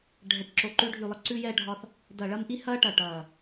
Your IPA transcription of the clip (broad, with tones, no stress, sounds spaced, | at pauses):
ɖʱ ɛ˨˩ ʈ ǁ o˨˩ ǃ ʉ˧ ɖʱ ʉ˨˩ lˠ ɐ˧ ǀ ʉː˧ j ɛː˧ ɖʱ ɒ˧ θ | d ɐ˨˩ ɭ ɐ˧ m ʔ i˧ h ɐː˧ ʈ ɐ˨˩ ʈ ɐː˨˩